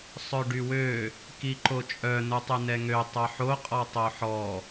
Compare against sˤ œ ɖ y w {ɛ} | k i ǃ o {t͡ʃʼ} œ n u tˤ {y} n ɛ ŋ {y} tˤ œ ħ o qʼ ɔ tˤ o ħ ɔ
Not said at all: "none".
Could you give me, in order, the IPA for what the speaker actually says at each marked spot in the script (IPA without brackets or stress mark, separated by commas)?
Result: ø, t͡ʃʼ, y, ø